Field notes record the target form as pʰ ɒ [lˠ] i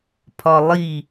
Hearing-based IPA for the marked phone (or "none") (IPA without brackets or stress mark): lˠ